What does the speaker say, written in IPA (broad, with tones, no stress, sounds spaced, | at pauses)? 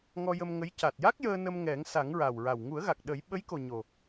ŋ ɔ˧ j ə˧ m ŋ ə˧˥ j c a˨˩ t̚ j a˦˥ k̚ j əː˧ n ə˧ m ŋ ɛ˨˩˦ ŋ s a˨˩˦ ŋ ɹ a˨˩ w ɹ a˨˩ w ŋ u˨˩˦ ə̯ ɣ a˨˩ k̚ ɗ ə˨˩˦ j ɓ ə˧˥ j k o˨˩ ɲ o˨˩